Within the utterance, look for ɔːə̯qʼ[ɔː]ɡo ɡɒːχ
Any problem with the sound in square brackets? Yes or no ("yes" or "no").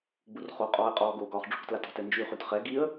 no